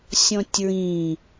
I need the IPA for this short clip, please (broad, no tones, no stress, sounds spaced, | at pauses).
sʲ ɔ̃ tʲ ɹ ĩ